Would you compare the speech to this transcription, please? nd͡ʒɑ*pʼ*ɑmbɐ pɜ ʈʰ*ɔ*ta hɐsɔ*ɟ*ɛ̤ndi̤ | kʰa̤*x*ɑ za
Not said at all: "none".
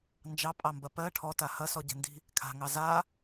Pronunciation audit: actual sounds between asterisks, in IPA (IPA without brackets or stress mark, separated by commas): pʼ, ɔ, ɟ, ŋ